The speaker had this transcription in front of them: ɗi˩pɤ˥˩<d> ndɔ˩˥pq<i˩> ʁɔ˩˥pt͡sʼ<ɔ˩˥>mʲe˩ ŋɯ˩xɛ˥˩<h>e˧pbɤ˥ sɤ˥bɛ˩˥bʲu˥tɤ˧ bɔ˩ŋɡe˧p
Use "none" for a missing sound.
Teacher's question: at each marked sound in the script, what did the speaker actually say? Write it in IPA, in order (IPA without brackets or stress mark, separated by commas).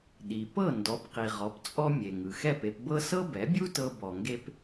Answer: none, i˩, ɔ˧, p